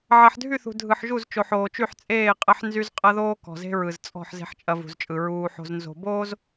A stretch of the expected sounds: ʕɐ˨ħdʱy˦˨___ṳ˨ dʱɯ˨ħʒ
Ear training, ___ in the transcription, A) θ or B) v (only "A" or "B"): A